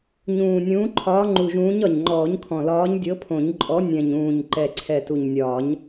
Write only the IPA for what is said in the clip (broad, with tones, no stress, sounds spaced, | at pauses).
ɲ ũː˨˩ nʲ ũː˨˥ ǃʰ ɒː˨˥ ŋ͡ǃ u˨˩ ʒ ũː˨˥ ɲ ɒ˨˩ ɲ ŋ͡ǃ ɔː˨˩˦ ɲ kʰ ɔ̃˨˩ l ɒː˨˥ ɲ dʲ ɤ˨˥ pʰ õ˨˩˦ ɲ ǃʼ ɔ˨˥ nʲ ɛ̃˨˩ ɲ ũː˨˩ ɲ ǃ ɛ˨˩ ǀʰ ɛ˨˩ t u˨˩ ɲ nʲ ɒː˨˩˦ ɲ